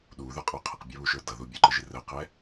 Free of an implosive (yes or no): no